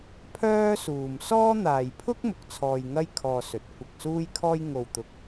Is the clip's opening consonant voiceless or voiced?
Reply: voiceless